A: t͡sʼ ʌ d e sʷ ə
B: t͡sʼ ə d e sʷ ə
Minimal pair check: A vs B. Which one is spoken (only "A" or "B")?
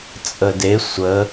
B